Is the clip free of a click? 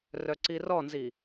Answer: no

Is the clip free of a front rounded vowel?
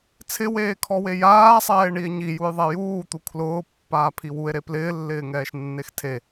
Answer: yes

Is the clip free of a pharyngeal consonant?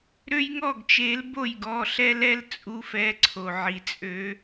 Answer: no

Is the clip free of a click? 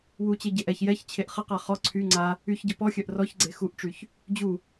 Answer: no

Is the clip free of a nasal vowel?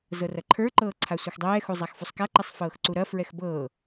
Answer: yes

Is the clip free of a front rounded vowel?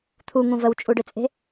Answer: no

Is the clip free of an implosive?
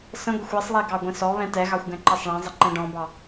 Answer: yes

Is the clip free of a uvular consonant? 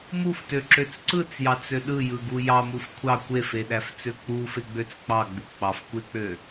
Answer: yes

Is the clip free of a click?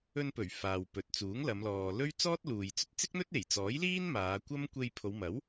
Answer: yes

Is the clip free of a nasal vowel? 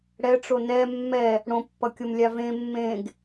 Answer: no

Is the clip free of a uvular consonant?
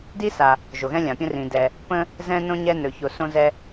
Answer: yes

